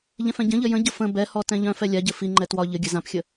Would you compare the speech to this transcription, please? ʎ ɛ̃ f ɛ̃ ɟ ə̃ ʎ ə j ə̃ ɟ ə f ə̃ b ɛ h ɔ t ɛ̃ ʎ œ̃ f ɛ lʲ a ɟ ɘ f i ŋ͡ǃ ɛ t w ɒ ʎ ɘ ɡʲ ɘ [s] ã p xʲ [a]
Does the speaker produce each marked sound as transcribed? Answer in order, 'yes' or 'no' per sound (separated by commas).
no, no